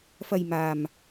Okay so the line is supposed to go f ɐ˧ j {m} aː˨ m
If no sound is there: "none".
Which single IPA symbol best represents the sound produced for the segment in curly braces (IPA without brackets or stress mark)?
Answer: m